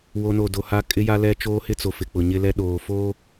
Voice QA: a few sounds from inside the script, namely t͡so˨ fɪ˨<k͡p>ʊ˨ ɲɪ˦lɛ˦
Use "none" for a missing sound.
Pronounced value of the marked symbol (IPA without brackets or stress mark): k͡p